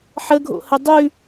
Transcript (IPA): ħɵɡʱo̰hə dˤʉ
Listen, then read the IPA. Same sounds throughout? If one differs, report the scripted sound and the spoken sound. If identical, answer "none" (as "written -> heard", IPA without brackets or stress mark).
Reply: ɵ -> ə